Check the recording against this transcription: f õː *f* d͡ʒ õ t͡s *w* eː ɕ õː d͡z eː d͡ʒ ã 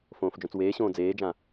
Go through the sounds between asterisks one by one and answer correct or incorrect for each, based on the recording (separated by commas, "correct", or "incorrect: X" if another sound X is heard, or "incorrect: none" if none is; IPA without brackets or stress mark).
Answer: correct, correct